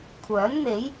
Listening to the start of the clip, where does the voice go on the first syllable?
rising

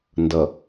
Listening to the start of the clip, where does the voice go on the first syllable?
low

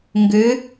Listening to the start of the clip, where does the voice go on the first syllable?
rising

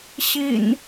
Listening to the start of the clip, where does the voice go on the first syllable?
low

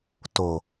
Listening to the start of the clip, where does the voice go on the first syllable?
low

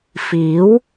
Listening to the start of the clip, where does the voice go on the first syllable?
rising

